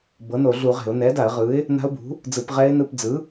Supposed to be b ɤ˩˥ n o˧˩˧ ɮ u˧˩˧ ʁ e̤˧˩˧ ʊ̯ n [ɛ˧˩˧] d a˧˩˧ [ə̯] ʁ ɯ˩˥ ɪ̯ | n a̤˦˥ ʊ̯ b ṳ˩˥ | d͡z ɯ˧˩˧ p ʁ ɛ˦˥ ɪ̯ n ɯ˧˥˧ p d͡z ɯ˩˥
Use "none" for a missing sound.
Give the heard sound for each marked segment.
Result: ɛ˩˥, ə̯

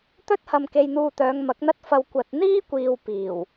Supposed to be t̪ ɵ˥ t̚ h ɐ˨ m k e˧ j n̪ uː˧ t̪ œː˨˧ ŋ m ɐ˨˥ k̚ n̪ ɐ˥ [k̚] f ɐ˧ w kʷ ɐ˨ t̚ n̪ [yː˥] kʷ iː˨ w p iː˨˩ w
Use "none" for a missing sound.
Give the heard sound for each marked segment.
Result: t̚, iː˥

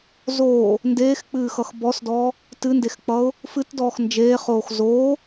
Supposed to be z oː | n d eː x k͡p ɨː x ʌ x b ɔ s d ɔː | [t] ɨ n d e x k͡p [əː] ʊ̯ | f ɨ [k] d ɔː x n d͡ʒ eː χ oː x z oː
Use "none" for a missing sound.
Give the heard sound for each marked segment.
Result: t, ʌː, t

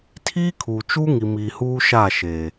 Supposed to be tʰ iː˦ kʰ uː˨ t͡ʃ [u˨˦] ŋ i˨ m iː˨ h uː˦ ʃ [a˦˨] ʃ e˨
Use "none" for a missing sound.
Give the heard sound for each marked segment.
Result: u˦, a˦˨

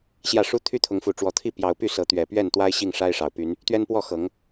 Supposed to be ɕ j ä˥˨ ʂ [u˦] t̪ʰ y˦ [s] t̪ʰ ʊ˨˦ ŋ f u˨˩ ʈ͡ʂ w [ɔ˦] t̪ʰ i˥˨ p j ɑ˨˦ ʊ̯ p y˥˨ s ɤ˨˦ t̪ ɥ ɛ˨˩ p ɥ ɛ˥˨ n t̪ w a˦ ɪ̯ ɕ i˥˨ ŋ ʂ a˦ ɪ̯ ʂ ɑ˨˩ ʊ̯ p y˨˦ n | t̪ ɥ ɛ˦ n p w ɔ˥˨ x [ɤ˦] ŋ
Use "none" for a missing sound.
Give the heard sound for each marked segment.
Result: u˦, none, ɔ˨˦, ɤ˨˦

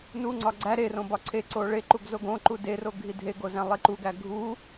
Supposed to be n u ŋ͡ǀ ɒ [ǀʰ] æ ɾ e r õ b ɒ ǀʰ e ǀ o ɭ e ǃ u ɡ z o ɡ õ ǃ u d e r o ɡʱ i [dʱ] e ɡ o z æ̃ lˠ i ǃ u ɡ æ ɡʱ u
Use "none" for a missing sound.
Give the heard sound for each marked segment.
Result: ɡ͡ǀ, dʱ

